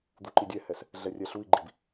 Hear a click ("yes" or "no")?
yes